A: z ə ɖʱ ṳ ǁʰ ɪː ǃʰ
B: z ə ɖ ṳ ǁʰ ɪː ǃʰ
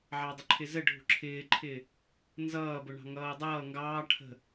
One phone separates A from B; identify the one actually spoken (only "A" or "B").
A